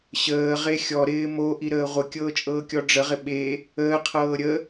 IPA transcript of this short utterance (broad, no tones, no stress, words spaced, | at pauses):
ɕəːʁe xʲɔɾɪː moʔiɾəː ʁʷɪkʲɤːt͡ʃʼɤːkʲɔ ɖ͡ʐəʁɪ ɓe | əːqʰɤː ɾʲə